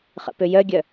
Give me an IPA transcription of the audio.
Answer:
χ ə̰ p ø j œ ɡʲ œ

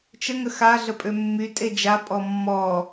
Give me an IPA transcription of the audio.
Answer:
t͡ʃ ə ŋ ə x a ɮ ə pʼ ø mː y tʼ e d͡ʒ a pʼ ɔ mː ɔ

